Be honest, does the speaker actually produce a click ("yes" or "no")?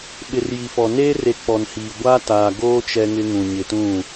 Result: no